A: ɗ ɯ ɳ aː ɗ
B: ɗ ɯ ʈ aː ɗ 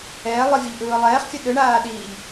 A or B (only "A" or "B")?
A